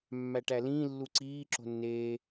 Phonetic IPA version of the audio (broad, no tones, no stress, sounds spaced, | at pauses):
mː æ ʈ æ l ĩː lː u ǀ iː ǁ o̤ nː eː